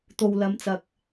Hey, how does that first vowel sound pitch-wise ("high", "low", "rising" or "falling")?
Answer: low